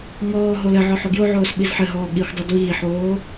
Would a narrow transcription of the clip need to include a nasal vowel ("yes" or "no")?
no